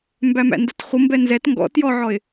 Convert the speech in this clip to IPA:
m b æ m æ̰ n d ə t χʷ ə m b ɛ n z ɛ t ŋ ɡ ɔ̰ t j ɔ ʕ ɔ ɪ̯

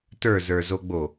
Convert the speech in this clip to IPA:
t ə˞ z ə˞ z o ɡ͡b o

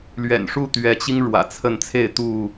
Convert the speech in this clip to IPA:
l ɥ ɛ̰˨˩ n ʂ u˥˨ t̪ ɥ ɛ˨˦ t͡ɕ i˦ ŋ ɻ w ä̰˨˩ t͡sʰ ə˥˨ n t͡sʰ e˥˨ ɪ̯ t̪ u˥˨

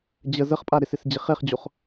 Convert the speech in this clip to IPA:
d͡ʑ ə z ə χ pʼ a ɾ ɪ s ɪ s d͡ʑ ɪ χ e χ d͡ʑ o χ

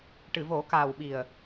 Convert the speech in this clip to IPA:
ʈ ɨ˨˩˨ v o˨˩˦ k aː˨˩ w ɓ i˨˩ ə̯

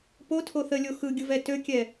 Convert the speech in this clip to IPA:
p o tʰ o θ ə lʲ o x ɯ ɡʲ ɯ v ɛ t ø kʲ ɛ

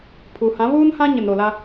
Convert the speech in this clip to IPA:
pʰ u˨ h ã˨˦ β uː˦ n h ã˦ ɲ ɪ˨ n ɾ o˨ l a˦

